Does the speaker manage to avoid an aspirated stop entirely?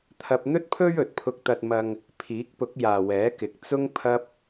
no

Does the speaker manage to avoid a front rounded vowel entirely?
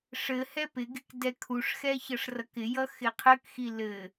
yes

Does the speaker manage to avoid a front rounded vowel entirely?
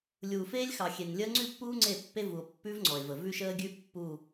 yes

